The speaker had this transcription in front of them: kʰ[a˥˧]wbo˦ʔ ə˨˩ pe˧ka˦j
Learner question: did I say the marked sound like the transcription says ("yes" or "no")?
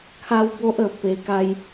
no